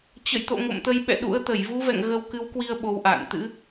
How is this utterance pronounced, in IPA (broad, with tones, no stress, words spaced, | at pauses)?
t͡ɕə̰˧˨jt̪o̰˧˨ ŋo̰˧˨mt̪ə˧j ɓɛ̰˧˨ ɗṵ˧˥ə̯t̪ə˧˩j vu˨˦vɛ̰˧˨ŋ ɣə˧wkɨ˨˦wkwi˧ə̯ ɓo˨˦wʔa̰ː˧˨n t̪ɨ̰˧˥